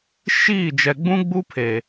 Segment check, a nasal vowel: present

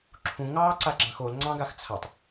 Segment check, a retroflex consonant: absent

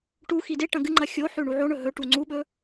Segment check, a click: present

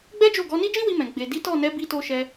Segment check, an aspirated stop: absent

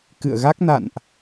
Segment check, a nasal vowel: absent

